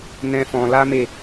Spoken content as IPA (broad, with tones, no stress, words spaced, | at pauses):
nɛ̃˦fɔ̃˧ la˦ me˦˨